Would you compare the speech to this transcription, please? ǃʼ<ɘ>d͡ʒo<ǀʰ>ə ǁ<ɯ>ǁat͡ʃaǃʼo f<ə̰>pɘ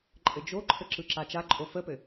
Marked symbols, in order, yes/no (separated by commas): yes, no, yes, no